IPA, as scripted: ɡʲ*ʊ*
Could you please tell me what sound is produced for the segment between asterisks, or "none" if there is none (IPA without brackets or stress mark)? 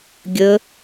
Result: ə